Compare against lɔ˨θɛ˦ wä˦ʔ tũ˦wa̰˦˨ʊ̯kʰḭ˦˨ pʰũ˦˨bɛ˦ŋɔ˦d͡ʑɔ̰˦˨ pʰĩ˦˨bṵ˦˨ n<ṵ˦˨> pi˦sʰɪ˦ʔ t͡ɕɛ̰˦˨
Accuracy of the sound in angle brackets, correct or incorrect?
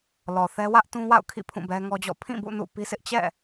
correct